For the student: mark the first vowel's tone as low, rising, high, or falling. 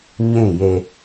falling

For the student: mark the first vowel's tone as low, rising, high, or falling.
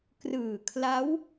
low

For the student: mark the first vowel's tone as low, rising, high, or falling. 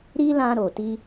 high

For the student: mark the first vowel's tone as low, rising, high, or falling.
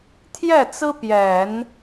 falling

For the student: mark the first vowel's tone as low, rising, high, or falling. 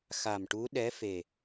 low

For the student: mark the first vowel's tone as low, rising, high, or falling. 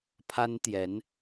high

